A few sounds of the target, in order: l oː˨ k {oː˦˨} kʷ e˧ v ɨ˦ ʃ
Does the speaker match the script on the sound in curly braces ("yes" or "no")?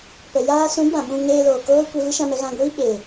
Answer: no